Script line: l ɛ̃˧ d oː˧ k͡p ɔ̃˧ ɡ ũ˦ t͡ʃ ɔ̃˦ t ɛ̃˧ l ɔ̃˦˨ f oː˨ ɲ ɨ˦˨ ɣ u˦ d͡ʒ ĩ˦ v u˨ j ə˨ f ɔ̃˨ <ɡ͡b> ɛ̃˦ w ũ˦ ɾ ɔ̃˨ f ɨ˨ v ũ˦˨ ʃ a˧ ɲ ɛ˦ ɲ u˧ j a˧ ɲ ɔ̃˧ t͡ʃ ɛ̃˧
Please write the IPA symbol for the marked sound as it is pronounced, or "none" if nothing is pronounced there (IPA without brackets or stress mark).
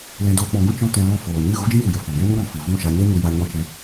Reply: ɡ